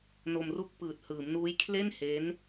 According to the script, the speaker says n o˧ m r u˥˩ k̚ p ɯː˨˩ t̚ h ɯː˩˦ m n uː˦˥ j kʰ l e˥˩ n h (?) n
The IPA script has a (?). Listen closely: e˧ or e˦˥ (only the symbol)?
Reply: e˦˥